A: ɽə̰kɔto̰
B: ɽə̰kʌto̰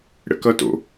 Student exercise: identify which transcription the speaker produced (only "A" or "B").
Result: B